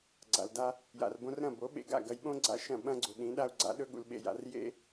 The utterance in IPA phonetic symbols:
ɡ͡ǀ a̰˩ l d a˧ | j a̰˩ r b õ˧ r ɾ ɐ̃˥˩ b o˩˥ ɓ ḛ˧ ɡ a̰˥˩ ɡ ɐ˧ j ɓ õ˥ ɡ͡ǀ a̰˧ ʃ ɐ̃˥˩ ɓ ɐ̃˥ ɡ͡ǀ u˩ ɗ ĩ˩˥ ɗ a˥ u̯ ɡ͡ǀ a̰˩˥ ɗ ɵ˥ ɠ ṵ˧ l ɓ ḛ˧ j a̰˩˥ r j ḛ˥

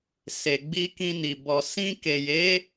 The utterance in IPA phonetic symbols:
s e˨ ɡ͡b i˧ k ĩ˧ n i˨ b ɔ˨ s ĩ˧ k e˨ j e˨˦

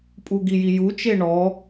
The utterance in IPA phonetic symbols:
pʼ u ɡ i j i j u t͡ʃ e ɳ ɔ

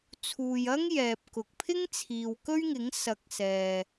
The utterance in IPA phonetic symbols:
t͡sʰ uː˧ j ɐ˥ ŋ j ɛː˨ p̚ k ʊ˨ k̚ pʰ ɪ˥ ŋ t͡sʰ iː˨ w k ɵ˥ ɥ ŋ ɪ˨˥ ŋ s ɐ˨˥ k̚ s ɛː˨

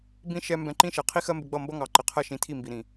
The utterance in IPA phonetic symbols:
b ĩ˦ ʃ ɛ˧ m b ɛ̃˧ ǃ ĩ˦ ʃ ɛ˨ qʰ i˦ x ɜ˦ m b ɪ˧ ɡ͡b ʌ˦˨ m b ʌ˦ ŋ ɑ˨ ǃ ɪ˨ qʰ ɜ˦ ʃ ĩ˨˦ tʰ i˦˨ m b i˨ ɾ ĩ˨

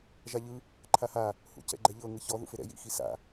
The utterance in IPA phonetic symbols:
ʒ a ʎ ɯ | ǃʰ a h a | h ṵ c ɛ̰ ɡ͡ǃ ɛ ʎ ɤ ŋ ɯ ç ɔ ð ṵ f e ɾ ɛ̰ j ḭ x i s a̰

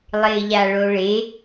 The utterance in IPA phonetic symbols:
lˠ ɪː ʎ a ɭ o ɭ e

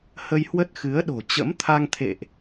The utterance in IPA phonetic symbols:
h ə˧ j h w ə˦˥ t̚ x ɨ˨˦ ə̯ ɗ o̤˨˩ t͡ɕ ə̰˧˥ m t̪ʰ a˧ ŋ t̪ʰ ḛ˧˨ ʔ

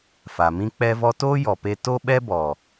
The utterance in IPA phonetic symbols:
f a˨ m ĩ˦ k͡p ɛ˦ v ɔ˦ t oː˦ j ɔ˨ p e˧ t o˦ ɓ ɛ˦ b ɔ˨

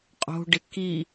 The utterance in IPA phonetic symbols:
qʼ o̤ ɖ ɪ k i

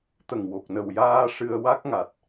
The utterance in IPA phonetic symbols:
t̪ ə˨˩ ŋ w o˨˩ k̚ n ə˨˩ w j aː˧ ʂ ɨ˧ ə̯ w a˦˥ k̚ ŋ a˨˩ t̚

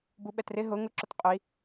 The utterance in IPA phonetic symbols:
b u ɓ ɛ t r ɪ ɦ ʊ ŋ ʊ ǁ ʊ t qʼ ʊ i̯

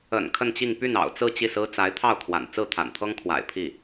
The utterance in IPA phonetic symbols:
ə̰˨˩ n kʰ ə˥˧ n t͡ɕ i˥˧ ŋ p y˥˩ n ɑ̰˨˩ ʊ̯ t͡s ɹ̩˥˧ t͡ɕ i˥˩ s ɹ̩˥ t͡s a˧˥ ɪ̯ t̪ʰ ɑ˥˩ ʊ̯ kʰ w a̰˨˩ n t͡s ɹ̩˥˩ t̪ʰ a̰˨˩ n t̪ʰ ɤ˥ ŋ kʰ w a̰˨˩ ɪ̯ pʰ i˥˩

